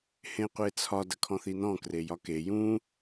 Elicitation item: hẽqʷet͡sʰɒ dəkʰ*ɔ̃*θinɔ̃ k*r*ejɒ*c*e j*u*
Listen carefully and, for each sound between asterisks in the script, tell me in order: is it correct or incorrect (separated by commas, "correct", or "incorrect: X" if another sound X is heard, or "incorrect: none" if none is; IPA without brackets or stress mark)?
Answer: correct, correct, incorrect: k, incorrect: ũ